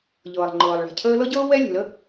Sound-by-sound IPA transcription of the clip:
ʎɤː˩lˠ ŋ͡ǃɤː˩lˠɭa̤˩cʰəː˥ lɤ˥ɟɤː˥ wɛ˥ lʲə̤˩lə˥

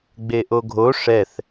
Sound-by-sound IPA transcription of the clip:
ɡ͡beʔoɡʱo ʂɛθ

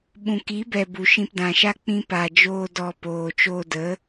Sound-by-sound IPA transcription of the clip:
ɓũ˨ki˨˦bɛ˨ bu˨ʃĩ˧pdã˨ʃa˦ k͡pĩ˦ pa˨d͡ʒoː˧ dɔ˧poː˨ t͡ʃo˧də˨˦

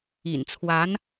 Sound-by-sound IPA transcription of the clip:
ḭ˨˩n t͡sʰwa˧˥n

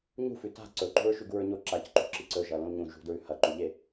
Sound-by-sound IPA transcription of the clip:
ɲṳfʉ ta̤ ǀɵǃṳɹ ʃʉɡuɹɲo ǁacǃṳǁi ǀɵʒɐ lõlɲũ ʒṳdɹʉ hɐǃuʎe

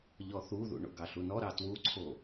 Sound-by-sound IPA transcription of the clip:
ʎɔθuðṵ ɳo̰ɡɑɬunɔ ɾɑtwuǀʰo

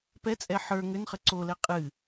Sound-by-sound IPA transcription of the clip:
pɛt͡sʼɛ ħə˞ ŋʏnχə ǀolɛ qʼɨ

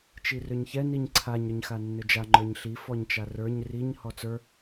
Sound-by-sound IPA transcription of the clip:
t͡ʃirʏɲçɛ niɲǀʰaɲ ɾʏɲxanːʏd͡ʒa ŋ͡ǃə˞ɲɬi fɔɲt͡ʃarə˞ɲ riɲ hɔt͡sə˞

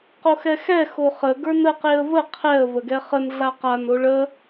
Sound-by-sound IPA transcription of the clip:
qoxɛxɛ xoχə ɡə˞nə qeə̯və qʰɛə̯ vəɡɛχən ɮaqan oɭə

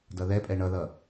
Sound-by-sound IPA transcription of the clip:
dʌðɛpʼɛ ɳʌðʌ

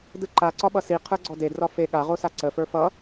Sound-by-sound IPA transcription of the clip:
dɯǃa ǀɒɓʌsi qʰə˞ɡ͡ǀɔde drɒfe ɠaʁosa ǀəfə˞ fʌ

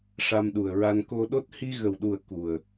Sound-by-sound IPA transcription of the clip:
ʂa˧mɗu˨˩ə̯ɹa˧n ko˧ɗo˦˥t̚ hi˧ɣə˨˩wɗu˨˩ə̯ ku˨˩ə̯

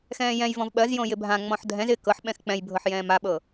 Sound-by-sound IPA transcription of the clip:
xɛ̃ːjɛ̃jvɔ̃v ɓɜzjõ jɪbʱã ŋ͡mɔ̃ħdʱɛ̃z ɪ kɤħ ɓɛ̃xk͡pɛ̃jbʱɤħ jɛ̃ːmaɓɤ

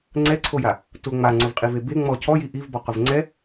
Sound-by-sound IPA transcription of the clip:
ŋ͡ǀɛǀʰoja | tʊ ŋ͡maŋ͡ǀʊvqʼive be ŋ͡mɔ cʰɔji ʔivbɔqʊv ŋ͡ǀɛ

